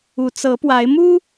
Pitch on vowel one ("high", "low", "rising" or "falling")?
low